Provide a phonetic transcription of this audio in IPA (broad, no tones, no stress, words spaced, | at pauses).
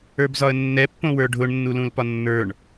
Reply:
ə˞bzɒə̯nːɛ pːõwə˞ɖʱʊɳ nːulũlpɒnːə˞ɳ